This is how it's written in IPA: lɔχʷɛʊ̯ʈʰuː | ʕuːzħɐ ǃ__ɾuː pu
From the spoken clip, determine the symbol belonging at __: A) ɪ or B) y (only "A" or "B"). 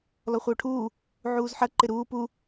A